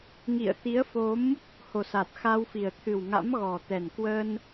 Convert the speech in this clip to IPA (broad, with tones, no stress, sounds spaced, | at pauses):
ŋ ḭ˧˨ ə̯ t̪ i˨˦ ə̯ f o˨˦ m | h o˨˩ s a˨˩ t̚ x a˧ w f i˨˩ ə̯ t̪ʰ ɨ˨˩ w ŋ a̰˧˥ m ɣ ɔ˨˩ t̪ ɛ˨˩ n k w ə˧ n